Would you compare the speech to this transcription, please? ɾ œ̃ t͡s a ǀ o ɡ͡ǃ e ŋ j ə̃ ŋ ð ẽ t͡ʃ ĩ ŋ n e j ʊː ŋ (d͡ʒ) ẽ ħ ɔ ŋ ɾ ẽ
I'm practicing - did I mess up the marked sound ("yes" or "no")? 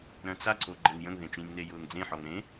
yes